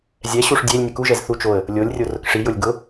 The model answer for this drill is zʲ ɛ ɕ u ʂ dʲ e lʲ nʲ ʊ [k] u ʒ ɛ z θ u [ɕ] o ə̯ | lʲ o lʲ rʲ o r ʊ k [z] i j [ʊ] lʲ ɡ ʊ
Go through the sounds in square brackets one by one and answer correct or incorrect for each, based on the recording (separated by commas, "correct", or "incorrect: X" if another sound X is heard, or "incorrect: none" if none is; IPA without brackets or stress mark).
correct, incorrect: t͡ʃ, incorrect: ʂ, correct